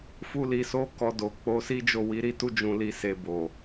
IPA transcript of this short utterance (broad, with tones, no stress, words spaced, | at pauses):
fu˧li˨so˨˦ kɔ˧ do˨k͡po˨˦si˦ d͡ʒo˦˨wi˨˦ɾi˦ tu˦d͡ʒũ˧ li˧se˧bo˨